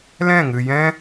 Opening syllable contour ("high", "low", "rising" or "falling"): falling